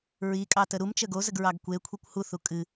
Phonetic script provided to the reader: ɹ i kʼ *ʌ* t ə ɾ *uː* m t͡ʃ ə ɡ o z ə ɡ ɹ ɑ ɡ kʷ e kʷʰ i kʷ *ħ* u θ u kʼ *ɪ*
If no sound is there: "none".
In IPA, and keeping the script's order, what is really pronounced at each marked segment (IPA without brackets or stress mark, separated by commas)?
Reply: ɑ, u, h, ɨ